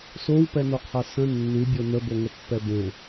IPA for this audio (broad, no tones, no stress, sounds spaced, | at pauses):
s o w p ɛ n o qʰ a s ə̃ nː ʉ bʲ o n ə b o ŋ ə pː ɛ b ẽ